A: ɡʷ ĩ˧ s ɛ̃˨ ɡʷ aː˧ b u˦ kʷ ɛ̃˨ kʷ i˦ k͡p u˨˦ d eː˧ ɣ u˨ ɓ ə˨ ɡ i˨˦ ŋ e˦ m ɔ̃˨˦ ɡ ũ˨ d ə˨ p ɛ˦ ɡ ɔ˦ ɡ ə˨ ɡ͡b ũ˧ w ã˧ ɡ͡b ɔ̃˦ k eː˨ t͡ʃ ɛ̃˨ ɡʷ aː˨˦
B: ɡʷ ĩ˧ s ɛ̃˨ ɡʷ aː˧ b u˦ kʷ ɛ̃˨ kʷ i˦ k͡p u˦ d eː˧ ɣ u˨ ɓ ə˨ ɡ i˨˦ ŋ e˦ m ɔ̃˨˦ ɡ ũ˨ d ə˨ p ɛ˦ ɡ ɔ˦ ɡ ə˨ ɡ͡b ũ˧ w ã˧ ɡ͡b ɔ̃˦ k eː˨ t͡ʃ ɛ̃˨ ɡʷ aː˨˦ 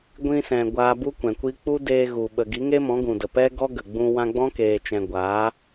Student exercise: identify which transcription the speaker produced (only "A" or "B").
B